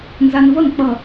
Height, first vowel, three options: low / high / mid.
low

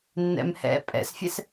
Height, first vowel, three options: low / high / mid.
mid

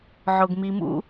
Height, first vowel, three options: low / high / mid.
mid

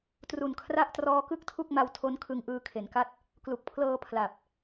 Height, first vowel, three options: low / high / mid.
high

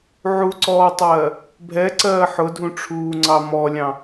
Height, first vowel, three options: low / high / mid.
high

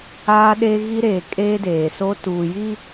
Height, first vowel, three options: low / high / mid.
low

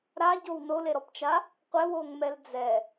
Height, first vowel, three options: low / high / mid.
low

